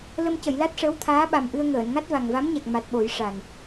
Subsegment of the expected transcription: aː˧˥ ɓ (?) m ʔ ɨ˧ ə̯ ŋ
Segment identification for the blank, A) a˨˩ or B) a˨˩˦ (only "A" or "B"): A